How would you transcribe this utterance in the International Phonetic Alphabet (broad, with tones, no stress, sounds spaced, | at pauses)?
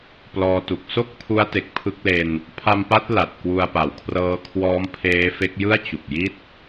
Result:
p l ɔː˧ t u˨˩ k̚ s o˥˩ k̚ pʰ u˦˥ a̯ t e˨˩ k̚ pʰ ɯ˦˥ k̚ l e˧ n | pʰ a˧ m p a˦˥ t̚ l a˨˩ t̚ k w u˧ a̯ p a˩˦ w kʰ r ɤː˦˥ kʰ w ɔː˦˥ m pʰ eː˦˥ f e˦˥ k̚ j ɯ˥˩ a̯ t͡ɕ u˨˩ k̚ j i˥˩ t̚